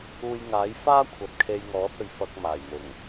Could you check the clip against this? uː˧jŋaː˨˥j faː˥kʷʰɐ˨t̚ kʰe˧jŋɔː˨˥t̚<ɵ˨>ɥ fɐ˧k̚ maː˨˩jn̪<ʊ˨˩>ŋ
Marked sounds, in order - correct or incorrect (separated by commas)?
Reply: correct, correct